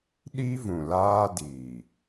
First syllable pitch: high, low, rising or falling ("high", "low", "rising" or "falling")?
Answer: high